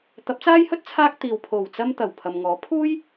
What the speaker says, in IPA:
t̪ɐ˨˥p̚t͡saː˥jhɵ˥t̚ t͡sʰaː˥k̚t̪iː˨w pʰo˨˩wt͡sɐ˧m t̪ɐ˨˩wpʰɐ˨mŋɔː˨˥ pʰuː˥j

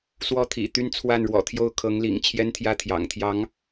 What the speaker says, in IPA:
swɔ˥˩t̪ʰḭ˨˩t̪y˥n t͡sʰwa˥˩nɻwɔ̰˨˩t̪ʰjo˥˩ʊ̯ kʰɤ˧˥ŋlḭ˨˩ŋ t͡ɕʰjɛ˥nt̪ʰjä˥˩ t̪ʰjɑ̰˨˩ŋt̪ʰjɑ˧˥ŋ

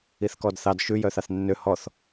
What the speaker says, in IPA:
iθkɔdθɑd ʃʉ jœθɑθnːø hɔθ

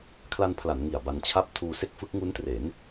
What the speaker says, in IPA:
kʰla˧npʰla˩˦n ŋi˨˩a̯ba˧nt͡ɕʰa˥˩p̚ tʰuː˧se˥˩k̚fɯ˦˥k̚ ŋu˦˥ntre˩˦n

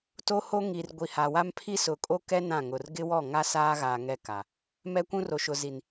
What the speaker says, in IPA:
to˦ho˦ ŋi˨rɡʷi˨ ha˨wa˦m pʰi˦sʊ˨kʼo˦kɛ˦ nã˦˨ŋʊ˨r ɡɪ˦wɔ˦˨ŋa˦ saː˦ɣaː˨ ŋɛ˦ ka˨ | mɛ˦kʷũ˦ro˨ ʃʊ˨zi˨n

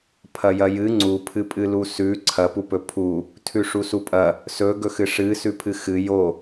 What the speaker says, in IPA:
pʰɐjɐjɨ ŋ͡ǀupʰɨpʼɨ lusʉ ǀʰɐpupɵ pʰu | tʰʉʂusupʼɐ | sɵɡɵxɨ ʂɨ sʉpʰɨxɨ jo

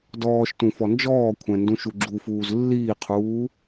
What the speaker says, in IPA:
dɔːʃtũ fɔnd͡ʒɔːkʷʰɛ̃ ndũʃuɡ͡ǁufuːz lːiːqʰuː

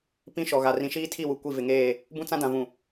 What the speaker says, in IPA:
pĩ˦ʃɔ˨ɣa˨ rĩ˨ʃiː˦tʰi˦˨wu˨ kʷi˦˨ vɪ˨ŋeː˦˨ | bũ˦t͡sã˦dã˨vũ˨

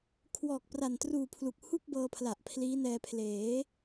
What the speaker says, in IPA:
kʰwɔː˨˩k̚pra˨˩ntruː˨˩ pʰlu˨˩k̚ hu˥˩k̚bɤː˧pʰla˨˩ʔ pʰliː˦˥nɛː˧ pʰleː˩˦

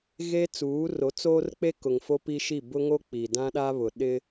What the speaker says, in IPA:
ɣeː˦t͡suː˨˦ro˨˦ t͡soː˦rk͡pe˦ kʊ˨ŋfo˦pi˦ʃi˦˨ bʊ˦ŋo˦ k͡pi˨dã˦ɗa˦βʊ˨ ɗɪ˦

